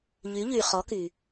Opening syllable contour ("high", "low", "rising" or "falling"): rising